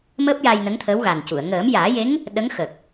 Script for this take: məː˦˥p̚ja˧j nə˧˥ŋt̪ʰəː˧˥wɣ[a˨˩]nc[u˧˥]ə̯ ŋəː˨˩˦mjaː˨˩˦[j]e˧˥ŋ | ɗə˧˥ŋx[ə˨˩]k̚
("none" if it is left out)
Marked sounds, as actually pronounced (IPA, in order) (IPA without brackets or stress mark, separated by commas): a˨˩, u˨˩˨, j, ə˨˩